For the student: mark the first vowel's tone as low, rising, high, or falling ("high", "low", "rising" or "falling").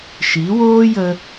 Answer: rising